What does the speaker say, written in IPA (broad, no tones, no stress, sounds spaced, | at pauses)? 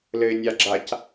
l ɘ ɪ̯ nʲ a ɡ͡ǁ a c